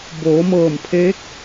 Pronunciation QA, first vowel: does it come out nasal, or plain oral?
oral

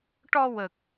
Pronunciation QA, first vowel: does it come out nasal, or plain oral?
oral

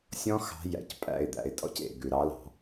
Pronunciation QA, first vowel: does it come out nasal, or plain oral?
nasal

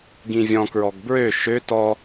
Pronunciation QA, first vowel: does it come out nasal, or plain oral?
nasal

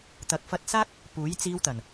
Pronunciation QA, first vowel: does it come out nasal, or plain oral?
oral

